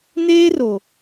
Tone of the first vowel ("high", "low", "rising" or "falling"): high